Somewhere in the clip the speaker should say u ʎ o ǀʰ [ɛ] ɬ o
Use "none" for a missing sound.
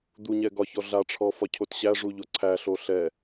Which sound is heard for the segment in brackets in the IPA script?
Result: æ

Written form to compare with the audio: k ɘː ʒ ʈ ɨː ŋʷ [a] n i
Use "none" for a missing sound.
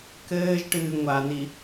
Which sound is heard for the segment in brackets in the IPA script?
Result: a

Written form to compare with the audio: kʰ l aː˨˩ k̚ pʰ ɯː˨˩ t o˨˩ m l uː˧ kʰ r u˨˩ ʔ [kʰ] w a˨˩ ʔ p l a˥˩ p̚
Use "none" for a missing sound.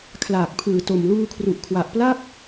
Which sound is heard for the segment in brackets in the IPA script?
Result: kʰ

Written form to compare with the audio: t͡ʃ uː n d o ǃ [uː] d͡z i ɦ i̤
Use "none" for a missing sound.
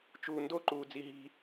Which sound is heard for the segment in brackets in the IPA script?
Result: uː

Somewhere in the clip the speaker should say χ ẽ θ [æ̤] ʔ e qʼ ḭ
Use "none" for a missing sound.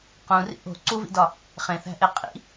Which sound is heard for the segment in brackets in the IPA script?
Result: æ̤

